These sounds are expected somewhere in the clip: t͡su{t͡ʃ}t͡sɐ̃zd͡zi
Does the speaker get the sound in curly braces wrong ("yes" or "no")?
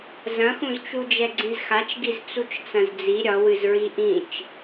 no